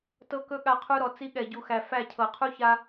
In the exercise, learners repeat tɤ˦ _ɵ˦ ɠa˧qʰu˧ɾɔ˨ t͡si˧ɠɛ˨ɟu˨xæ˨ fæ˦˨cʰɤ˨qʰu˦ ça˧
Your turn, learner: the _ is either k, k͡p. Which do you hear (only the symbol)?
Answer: k